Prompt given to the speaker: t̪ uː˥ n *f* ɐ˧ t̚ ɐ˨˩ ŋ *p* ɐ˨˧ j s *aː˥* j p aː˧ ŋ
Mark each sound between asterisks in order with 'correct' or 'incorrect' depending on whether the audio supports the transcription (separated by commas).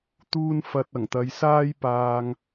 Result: correct, incorrect, correct